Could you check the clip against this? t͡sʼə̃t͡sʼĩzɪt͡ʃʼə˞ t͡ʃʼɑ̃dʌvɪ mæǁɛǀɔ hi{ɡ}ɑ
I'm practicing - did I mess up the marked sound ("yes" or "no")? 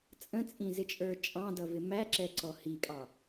yes